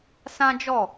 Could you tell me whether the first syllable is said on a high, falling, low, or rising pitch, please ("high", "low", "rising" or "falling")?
high